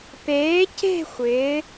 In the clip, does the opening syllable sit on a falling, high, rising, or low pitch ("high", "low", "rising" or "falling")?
rising